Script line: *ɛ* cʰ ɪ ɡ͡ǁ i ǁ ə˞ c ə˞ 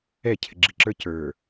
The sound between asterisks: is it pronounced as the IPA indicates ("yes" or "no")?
yes